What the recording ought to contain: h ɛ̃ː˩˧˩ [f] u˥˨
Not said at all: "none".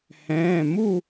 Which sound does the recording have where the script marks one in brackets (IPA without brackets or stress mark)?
m